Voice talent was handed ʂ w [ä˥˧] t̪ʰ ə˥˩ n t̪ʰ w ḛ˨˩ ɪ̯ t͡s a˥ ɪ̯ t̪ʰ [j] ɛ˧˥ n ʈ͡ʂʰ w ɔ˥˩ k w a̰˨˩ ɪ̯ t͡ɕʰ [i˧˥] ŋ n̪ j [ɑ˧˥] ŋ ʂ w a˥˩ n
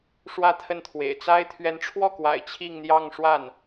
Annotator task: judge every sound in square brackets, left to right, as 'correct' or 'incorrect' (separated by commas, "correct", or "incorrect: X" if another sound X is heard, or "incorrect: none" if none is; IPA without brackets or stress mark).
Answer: correct, incorrect: ɥ, incorrect: i˥˧, incorrect: ɑ˥˧